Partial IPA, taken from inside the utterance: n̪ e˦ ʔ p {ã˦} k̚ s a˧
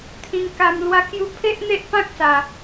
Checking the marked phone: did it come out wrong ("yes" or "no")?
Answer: no